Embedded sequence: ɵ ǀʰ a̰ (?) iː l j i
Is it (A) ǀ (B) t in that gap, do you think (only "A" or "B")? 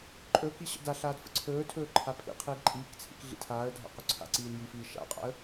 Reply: A